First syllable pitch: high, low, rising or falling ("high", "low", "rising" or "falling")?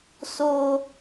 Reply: low